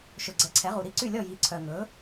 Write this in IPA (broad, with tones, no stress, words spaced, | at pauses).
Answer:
ʃɵ˨ɡ͡ǀɛ˨˥ǀʰɛ˨˥ʁu˨ ɾi˥˨ǀy˥˨lʲɔ˥˨ ji˨˥ǀʰœ˨ŋɵ˨˥